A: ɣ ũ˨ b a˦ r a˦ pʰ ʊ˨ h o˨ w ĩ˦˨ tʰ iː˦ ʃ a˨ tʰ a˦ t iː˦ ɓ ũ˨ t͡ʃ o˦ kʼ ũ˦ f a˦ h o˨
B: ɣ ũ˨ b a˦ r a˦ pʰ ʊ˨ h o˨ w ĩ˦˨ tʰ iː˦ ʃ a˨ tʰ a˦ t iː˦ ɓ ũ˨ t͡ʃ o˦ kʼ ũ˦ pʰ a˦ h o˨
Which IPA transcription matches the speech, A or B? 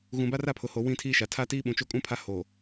B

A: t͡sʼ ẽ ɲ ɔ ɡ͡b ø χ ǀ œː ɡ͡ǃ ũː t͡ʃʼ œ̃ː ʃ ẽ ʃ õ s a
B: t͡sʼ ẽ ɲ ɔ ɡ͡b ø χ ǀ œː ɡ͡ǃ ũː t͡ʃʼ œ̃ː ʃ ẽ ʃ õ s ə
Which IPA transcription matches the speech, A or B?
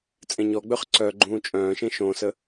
B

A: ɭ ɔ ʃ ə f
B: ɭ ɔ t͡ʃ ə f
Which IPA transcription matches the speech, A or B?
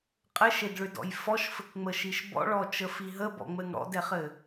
B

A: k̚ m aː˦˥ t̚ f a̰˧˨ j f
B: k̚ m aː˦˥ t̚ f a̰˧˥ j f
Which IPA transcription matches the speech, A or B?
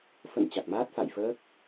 A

